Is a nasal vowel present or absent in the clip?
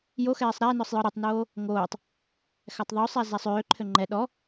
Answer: absent